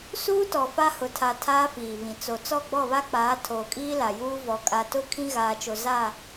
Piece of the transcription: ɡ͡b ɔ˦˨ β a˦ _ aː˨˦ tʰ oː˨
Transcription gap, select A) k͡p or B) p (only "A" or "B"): A